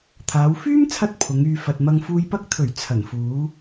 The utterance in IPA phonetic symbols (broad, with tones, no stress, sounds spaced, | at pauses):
t̪ʰ aː˨˧ w f yː˥ m t͡sʰ ɐ˧ t̚ pʰ ʊ˨˧ ŋ yː˧ f ɐ˧ t̚ m ɐ˥ ŋ f uː˧ j p ɐ˥ k̚ t̪ʰ ɵ˨˩ ɥ t͡sʰ ɐ˨˩ n f uː˨˥